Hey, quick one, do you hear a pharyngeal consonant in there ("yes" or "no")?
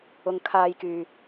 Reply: no